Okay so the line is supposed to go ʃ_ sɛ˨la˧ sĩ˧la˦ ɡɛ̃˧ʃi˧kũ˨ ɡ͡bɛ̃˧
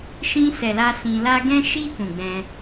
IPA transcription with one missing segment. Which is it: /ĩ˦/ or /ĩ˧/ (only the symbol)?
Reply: ĩ˧